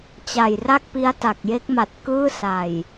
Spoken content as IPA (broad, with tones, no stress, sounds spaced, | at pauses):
t͡ɕ a˨˩ j r a˥˩ k̚ p i˦˥ a̯ t a˨˩ k̚ j e˦˥ k̚ m a˨˩ t̚ k ɯː˥˩ s a˨˩ j